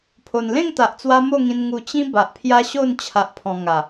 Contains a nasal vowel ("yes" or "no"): yes